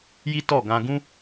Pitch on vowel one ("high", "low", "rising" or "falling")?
high